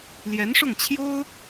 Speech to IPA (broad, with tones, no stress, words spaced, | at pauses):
ljɛ˧˥nʂʊ˥˩ŋ t͡ɕʰjo˥ʊ̯